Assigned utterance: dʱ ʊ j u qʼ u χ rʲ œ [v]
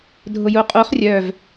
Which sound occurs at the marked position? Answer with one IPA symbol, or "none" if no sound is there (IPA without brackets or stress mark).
v